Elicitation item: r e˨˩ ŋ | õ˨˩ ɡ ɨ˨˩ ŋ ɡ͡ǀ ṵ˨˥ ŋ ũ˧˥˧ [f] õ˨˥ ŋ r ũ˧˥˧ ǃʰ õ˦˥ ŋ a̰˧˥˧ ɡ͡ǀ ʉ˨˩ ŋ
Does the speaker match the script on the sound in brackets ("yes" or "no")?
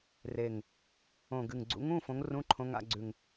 yes